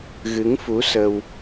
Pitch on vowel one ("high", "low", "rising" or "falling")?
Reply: rising